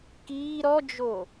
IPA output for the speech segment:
k iː ɾ ɔ d͡ʒ o

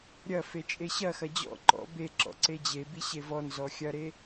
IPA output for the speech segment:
ɾʲ ɐ f e t͡ʃʼ e ɕ ɐ x ɐ d͡ʑ ɔ̰ ǃ ɔ̰ b e ǁ ɔ̰ ǀ e d͡ʑ e b i ɕ e v ɔ n z ɔ xʲ ɐ ɾ e

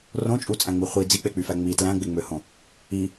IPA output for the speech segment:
r õ t͡ʃʼ u t͡sʼ æ̃ ŋ͡m i χʷ i d͡z i k͡p e k͡p y f æ ŋ͡m i t l æ̃ ɡ͡b e ŋ͡m ø h õ | i

